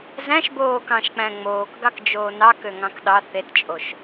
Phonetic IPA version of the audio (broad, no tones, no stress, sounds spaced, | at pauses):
z æ̃ ʃ b oː k ɑ̃ ʃ k͡p æ̃ ŋ͡m oː k ɡ ɑ k d͡ʒ oː n ɑ k ø ŋ ɑ̃ k ɗ ɑ θ e t t͡ʃʼ o ʃ